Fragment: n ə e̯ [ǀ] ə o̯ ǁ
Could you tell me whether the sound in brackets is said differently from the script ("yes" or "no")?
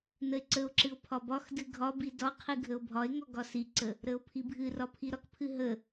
no